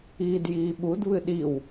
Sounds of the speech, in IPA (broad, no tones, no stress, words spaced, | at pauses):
iːdjiːɓud βɨɗiw